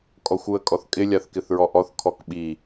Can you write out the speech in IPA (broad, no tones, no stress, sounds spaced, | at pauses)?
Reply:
kʼ ɔ xʷ u ə̯ kʼ ɔ θ kʼ ɪ lʲ a θ k ɪ θ ɹ ɔ ʔ ɔ θ kʰ ɔ k ɓ i